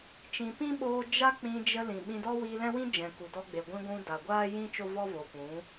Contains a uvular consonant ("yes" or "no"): no